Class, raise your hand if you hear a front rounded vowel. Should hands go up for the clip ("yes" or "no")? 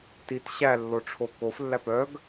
yes